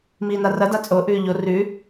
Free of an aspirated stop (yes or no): yes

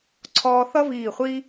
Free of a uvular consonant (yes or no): no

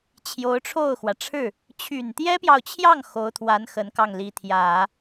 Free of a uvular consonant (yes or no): yes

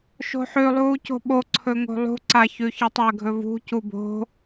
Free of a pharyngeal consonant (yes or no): no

